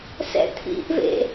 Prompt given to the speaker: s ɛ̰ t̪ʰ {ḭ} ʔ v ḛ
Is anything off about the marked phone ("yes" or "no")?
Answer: no